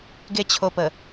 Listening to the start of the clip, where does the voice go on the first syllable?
falling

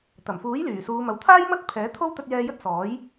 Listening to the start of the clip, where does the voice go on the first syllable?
low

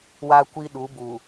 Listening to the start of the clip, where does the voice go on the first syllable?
high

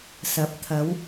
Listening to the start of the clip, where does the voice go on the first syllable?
rising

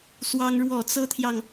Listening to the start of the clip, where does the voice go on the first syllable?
high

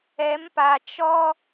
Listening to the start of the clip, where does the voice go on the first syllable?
rising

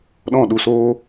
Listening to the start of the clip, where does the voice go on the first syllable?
falling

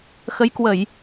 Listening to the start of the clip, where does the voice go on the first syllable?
rising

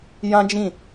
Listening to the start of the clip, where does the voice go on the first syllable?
high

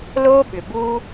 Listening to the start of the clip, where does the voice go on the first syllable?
high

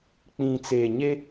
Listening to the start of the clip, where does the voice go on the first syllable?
low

